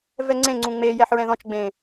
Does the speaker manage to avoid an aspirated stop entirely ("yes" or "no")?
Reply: yes